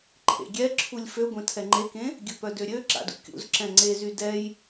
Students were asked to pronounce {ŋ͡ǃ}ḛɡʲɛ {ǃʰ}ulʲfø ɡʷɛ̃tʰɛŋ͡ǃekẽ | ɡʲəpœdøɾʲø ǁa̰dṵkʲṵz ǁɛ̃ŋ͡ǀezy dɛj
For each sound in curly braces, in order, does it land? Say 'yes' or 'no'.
no, no

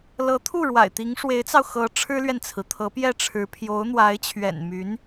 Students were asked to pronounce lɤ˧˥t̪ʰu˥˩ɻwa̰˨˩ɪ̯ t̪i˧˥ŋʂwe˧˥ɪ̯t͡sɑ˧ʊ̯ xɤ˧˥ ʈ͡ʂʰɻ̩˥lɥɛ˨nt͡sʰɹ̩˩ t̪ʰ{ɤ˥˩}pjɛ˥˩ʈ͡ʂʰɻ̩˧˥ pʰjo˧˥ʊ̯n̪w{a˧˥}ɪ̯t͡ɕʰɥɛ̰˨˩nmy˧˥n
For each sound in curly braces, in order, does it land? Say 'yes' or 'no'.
no, yes

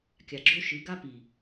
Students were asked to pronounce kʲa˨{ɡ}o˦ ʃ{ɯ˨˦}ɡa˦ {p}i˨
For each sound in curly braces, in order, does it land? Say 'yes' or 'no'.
no, yes, yes

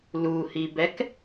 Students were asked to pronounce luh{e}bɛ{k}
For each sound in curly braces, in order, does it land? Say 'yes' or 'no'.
no, yes

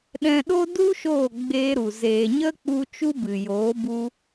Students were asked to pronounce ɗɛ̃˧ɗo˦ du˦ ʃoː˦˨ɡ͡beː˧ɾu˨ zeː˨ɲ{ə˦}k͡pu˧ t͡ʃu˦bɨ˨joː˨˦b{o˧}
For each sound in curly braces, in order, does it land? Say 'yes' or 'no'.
yes, no

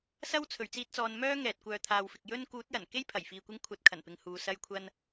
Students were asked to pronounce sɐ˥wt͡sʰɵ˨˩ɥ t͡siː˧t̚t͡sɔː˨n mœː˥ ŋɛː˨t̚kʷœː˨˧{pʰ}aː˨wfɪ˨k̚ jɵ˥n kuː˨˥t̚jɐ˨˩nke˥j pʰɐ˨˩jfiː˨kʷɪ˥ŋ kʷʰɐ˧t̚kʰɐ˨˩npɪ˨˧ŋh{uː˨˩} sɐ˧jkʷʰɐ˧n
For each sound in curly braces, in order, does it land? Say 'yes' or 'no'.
no, no

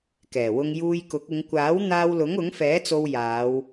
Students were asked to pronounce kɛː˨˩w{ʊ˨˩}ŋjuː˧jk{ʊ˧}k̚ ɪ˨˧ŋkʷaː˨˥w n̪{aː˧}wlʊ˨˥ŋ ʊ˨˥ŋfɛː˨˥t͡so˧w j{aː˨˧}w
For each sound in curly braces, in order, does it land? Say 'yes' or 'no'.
no, no, yes, yes

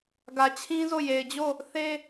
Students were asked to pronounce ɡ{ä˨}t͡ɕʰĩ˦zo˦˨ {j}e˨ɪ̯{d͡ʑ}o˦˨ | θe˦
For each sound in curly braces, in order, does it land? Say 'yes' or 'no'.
yes, yes, yes

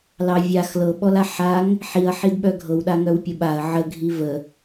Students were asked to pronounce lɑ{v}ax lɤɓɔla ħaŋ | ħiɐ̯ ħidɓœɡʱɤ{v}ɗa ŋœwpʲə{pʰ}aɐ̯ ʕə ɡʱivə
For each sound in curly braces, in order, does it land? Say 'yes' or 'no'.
no, no, no

